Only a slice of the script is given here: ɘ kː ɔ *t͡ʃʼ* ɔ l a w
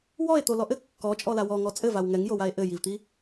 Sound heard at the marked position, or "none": t͡ʃʼ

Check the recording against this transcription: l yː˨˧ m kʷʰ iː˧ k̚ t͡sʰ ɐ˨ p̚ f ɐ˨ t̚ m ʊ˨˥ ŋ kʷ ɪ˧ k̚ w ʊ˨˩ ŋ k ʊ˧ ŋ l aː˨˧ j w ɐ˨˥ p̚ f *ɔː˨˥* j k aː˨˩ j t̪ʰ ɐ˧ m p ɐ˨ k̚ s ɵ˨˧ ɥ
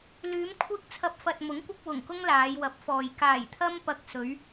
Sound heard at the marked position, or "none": ɔː˨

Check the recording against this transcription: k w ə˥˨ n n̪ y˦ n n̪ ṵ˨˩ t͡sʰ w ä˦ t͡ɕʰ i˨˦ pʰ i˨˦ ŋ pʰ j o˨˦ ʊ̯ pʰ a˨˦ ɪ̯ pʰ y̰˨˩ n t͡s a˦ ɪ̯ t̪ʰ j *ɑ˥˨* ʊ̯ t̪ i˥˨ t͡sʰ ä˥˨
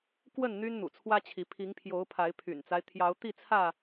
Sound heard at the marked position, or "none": ɑ˨˦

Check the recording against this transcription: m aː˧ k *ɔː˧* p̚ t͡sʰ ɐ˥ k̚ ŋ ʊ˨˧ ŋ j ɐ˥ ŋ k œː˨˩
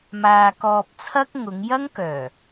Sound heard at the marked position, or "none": ɔː˧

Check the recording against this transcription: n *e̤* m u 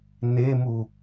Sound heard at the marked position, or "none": e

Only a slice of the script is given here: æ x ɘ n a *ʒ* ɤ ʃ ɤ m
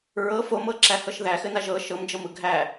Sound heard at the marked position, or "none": ʒ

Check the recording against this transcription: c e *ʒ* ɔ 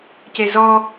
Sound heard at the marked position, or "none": z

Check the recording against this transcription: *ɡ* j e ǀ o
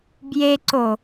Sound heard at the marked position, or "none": b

